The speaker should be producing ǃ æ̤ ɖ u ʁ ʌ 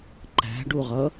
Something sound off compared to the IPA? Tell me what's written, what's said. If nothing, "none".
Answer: none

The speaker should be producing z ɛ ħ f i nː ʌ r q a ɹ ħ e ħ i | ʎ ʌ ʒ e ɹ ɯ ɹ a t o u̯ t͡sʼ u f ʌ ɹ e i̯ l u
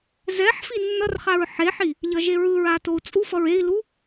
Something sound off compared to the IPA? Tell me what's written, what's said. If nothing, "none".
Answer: q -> χ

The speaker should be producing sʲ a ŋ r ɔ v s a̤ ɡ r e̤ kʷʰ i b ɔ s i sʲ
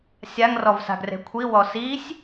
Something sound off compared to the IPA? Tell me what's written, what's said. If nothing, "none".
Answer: b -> w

